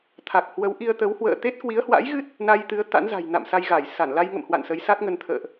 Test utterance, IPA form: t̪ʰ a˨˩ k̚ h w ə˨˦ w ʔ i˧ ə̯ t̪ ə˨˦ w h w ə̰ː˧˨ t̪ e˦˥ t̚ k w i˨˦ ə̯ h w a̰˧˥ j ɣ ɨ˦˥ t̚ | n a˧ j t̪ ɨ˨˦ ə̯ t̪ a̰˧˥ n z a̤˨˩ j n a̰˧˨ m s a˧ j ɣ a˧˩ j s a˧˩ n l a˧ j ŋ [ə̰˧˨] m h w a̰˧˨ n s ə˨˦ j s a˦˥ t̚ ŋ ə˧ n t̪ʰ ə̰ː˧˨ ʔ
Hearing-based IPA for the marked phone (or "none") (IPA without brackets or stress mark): ə̰˧˨